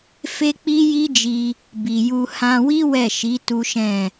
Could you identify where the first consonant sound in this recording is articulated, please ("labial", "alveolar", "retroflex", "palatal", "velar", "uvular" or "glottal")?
labial